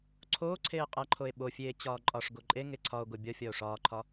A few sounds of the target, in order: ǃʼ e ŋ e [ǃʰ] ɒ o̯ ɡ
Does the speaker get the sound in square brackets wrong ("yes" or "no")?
yes